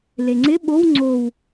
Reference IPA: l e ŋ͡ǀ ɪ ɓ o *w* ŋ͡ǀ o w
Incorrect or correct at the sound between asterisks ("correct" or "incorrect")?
correct